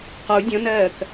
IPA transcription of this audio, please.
q ɒ u̯ dʲ ɔ̃ n ɜː k

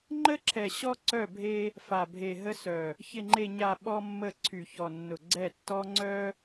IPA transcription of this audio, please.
ŋ͡ǃ ə˦ ǁʰ ɛ˨ ɕ ɔ˦ ǀ œ˦˨ bʱ e˦ | f a˨ bʱ e˨ ɦ ə˦ s œ˨ | ç ɪ˨ ŋ͡ǃ e˨ ɲ a˨ ɓ ɔ˦ mː ə˦˨ ǀʰ y˨ ç ɔ˨ nː ʊ˨ ɡ͡ǀ ɛ˦˨ tː ɔ˦ ŋ͡ǀ œ˦

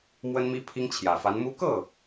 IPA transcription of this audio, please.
m w ə˥ n m i˥ pʰ i˥ ŋ t͡ɕʰ j ä˨˩ f a˧˥ n m u˥ k ɤ˥˩

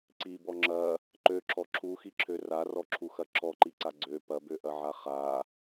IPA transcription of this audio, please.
ǀ i b ɔ ŋ͡ǁ ɐ | ǃ ø ǁ ɔ ǁʰ u x i ǁʰ ø r a r ɔ ǁʰ u x ɐ ǁʰ ɔ ǃ i ǀ a ɡ͡ǀ ø p ɐ b ø ʔ ɐ ʕ a χ a

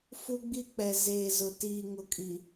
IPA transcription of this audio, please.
f u˦ ɡ͡b i˦ k͡p ɛ˨ z eː˨ z ʊ˨ t iː˨ ŋ ʊ˨ kʼ i˨

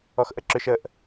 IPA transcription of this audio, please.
ɔ x ʔ ə ǁ ʏ ʃ ə ʔ

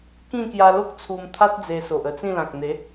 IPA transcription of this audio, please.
k ĩ˥˧ k j a˧ l o˦ k̚ t͡sʰ u˧ m t̪ʰ a˦ t̚ d͡z e˧ s o˨ ʔ ə˧ t͡s ĩ˥˧ l ã˨ k̚ n̪ e˨˦

